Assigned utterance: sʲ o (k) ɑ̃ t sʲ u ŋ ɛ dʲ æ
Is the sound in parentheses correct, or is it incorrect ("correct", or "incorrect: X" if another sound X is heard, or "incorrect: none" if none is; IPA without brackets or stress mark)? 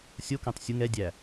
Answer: correct